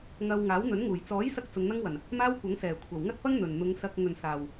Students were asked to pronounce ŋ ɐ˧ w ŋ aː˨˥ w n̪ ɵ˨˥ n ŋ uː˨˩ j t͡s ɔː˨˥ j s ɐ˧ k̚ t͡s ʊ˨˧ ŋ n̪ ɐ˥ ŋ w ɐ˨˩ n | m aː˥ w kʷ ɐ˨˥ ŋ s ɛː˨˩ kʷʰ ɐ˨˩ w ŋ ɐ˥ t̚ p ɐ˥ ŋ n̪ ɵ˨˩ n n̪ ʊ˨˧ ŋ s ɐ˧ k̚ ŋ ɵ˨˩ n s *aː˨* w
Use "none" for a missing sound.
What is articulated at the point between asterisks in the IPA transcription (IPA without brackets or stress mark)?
aː˨˩